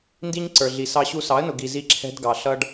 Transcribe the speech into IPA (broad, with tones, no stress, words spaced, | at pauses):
ndi˦ɲǀə˞˨ɮi˨ sɑ˦ɕu˦ sɑ˨˦ə̯nʊ˨ ɡi˨zi˦ǁʰɛ̤˦dɡɑ˨ ɬʌ˦ɖ